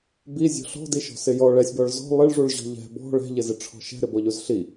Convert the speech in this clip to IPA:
bizʲɔ̤ ɬɔ̤diʃɔ̤ sɪjɔ ɭɛsʲbɔɭ zɔ̤ lˠɪɭʐuɭʑɔ̤ ʎɛ̤ bɔ̤ ɭɛ̤ʎɪzɪʈ͡ʂʰɔ̤ ʃɛ̤ɾɪbɔʎuz ɬi

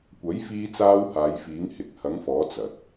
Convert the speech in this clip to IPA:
kʷɐ˨˥jfiː˧t͡saː˧w haː˨˧jfiː˨˥ŋhɪ˨˥k̚ hɐ˨˥ŋfɔː˨˥ t͡sɐ˨t̚

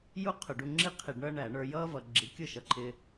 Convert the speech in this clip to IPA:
ju˥ qʰʊ˧˩˧ɖu˧ ŋ͡ǁi˥ qʰi˧˩˧ɖɳʌː˥ ɳæ˧˩˧ɳə˞˧jʌː˥ vʌ˧ ɡ͡ǁi˩˥kʲʊ˥˩ʃʌ˧˩˧ǃʰɪː˧

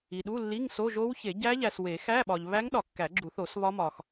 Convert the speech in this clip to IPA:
i˨ ɗu˧˥˧lːi˧˥˧ŋ so˧˥˧ʒo˦˥w çe˨˩˦ɟæ˦˥ʎæ˨swe˨˩˦ xæ˧˥˧ɓɒ˨ʎβæ˦˥ŋɗɒ˨˩˦ kːæ˨˩˦ɡ͡ǁu˨˩˦θo˨˩˦s βɒ˦˥mɒ˨x

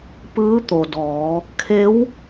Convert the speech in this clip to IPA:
pɯː˧˥t̪o˩dɔː˩˧ | kʰe˧˥w

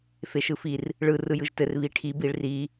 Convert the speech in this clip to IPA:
feʃɯfir | ɭɯ rɯjɯʒtɘr βiʈʰib iɭri

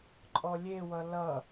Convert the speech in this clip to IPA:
ǃʼɔlʲewʌ lʌ

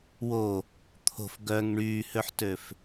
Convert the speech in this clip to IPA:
wo | t̪ʰo̤f ɡœŋ ɳyːhøħtøf

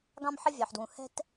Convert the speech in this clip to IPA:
ɡɑ̃˥mħɪ˥vʲɑ˩ħdwũ˩ hɛ̤˥t

